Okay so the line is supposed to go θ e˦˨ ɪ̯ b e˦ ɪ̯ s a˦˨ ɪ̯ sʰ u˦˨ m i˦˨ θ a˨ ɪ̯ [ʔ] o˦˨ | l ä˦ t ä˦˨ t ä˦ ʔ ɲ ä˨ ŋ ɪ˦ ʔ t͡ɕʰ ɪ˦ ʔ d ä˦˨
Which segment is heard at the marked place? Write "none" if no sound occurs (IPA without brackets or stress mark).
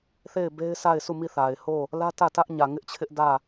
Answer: h